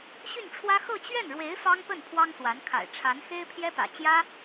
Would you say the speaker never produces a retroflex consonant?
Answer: no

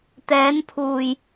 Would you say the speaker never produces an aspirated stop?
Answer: no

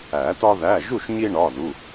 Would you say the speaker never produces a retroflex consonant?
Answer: no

